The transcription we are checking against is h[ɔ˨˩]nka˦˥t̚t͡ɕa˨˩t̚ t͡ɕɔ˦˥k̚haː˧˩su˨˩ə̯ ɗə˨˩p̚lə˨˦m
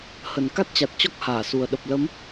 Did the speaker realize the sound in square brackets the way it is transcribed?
no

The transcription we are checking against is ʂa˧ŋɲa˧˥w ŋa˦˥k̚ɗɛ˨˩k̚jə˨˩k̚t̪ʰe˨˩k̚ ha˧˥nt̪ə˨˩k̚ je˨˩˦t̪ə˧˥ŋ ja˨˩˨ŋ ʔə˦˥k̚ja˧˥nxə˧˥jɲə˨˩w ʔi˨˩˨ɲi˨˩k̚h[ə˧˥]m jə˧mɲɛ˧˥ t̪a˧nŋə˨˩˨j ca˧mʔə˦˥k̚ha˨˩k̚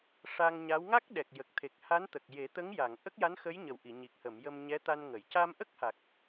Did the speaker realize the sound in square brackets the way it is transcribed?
no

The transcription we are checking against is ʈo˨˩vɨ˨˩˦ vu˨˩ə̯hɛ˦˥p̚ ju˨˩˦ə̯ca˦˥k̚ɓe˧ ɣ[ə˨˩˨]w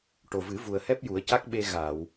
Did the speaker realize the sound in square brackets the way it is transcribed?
no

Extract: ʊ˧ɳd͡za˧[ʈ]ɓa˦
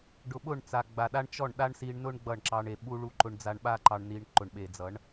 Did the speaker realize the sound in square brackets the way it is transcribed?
no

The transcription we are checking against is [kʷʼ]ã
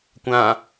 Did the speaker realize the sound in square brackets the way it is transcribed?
no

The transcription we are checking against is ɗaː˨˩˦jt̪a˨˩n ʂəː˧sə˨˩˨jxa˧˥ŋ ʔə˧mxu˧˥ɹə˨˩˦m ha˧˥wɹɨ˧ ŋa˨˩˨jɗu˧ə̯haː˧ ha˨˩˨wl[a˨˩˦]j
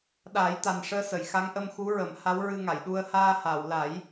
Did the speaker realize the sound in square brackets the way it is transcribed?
yes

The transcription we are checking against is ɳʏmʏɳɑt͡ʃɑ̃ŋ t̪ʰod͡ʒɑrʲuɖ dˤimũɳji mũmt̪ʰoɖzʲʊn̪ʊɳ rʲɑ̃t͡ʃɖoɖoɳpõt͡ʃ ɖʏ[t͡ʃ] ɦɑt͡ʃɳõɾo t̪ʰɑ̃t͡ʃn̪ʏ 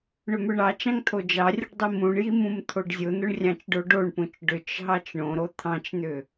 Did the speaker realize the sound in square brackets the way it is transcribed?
yes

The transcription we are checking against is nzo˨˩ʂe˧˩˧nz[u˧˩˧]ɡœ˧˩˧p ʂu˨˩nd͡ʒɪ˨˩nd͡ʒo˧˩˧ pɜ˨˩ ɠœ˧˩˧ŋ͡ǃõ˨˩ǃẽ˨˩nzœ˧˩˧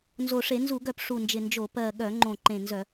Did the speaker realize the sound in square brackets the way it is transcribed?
yes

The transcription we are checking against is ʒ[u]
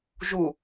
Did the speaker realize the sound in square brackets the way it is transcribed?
yes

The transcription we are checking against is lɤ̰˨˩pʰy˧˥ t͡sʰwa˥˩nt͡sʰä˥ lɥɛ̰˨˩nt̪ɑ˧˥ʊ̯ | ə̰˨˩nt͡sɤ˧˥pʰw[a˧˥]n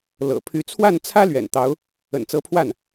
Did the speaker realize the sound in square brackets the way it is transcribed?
no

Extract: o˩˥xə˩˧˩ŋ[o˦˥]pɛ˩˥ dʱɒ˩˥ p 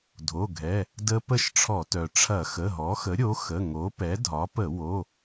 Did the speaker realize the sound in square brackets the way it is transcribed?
no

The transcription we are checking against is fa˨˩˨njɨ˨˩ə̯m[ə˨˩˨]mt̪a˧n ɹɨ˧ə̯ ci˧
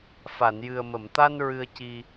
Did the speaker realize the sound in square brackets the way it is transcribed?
yes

